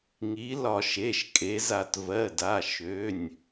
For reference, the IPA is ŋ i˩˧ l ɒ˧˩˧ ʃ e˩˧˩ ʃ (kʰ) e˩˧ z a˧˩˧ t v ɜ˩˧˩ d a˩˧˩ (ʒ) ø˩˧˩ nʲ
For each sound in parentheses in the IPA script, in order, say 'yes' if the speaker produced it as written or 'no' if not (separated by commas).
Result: no, no